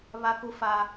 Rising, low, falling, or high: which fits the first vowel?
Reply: high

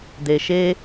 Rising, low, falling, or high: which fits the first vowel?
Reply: low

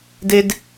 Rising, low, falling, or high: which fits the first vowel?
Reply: high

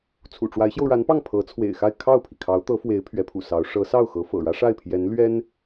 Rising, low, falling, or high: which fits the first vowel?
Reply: low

